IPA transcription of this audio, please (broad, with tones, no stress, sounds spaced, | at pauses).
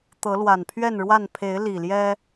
t̪ ɤ˨˦ l w a˨˩ n pʰ ɥ ɛ˥˨ n ɻ w a˥˨ n pʰ e˨˦ ɪ̯ l i˨˩ l j ɛ˦